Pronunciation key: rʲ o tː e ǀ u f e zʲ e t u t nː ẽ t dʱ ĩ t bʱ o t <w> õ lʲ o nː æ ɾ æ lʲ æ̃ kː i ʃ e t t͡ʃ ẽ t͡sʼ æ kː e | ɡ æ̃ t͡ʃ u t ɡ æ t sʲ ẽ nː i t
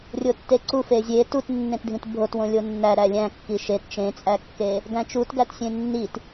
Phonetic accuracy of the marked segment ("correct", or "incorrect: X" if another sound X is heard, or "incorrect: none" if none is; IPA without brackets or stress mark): correct